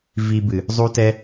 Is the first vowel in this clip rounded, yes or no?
no